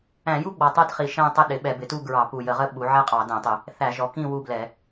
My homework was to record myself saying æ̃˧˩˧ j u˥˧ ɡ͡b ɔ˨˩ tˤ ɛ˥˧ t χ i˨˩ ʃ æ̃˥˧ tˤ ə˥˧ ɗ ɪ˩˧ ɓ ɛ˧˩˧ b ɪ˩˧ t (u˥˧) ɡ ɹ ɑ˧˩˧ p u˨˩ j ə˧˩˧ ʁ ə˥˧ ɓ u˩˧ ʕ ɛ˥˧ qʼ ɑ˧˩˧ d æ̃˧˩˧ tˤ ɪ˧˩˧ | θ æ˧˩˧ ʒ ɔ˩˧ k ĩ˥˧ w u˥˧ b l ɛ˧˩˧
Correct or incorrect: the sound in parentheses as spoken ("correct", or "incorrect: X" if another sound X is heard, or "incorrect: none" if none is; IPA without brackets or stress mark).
correct